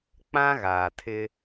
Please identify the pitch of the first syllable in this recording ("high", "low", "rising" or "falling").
high